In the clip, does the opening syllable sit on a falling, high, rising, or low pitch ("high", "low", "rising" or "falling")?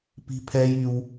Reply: high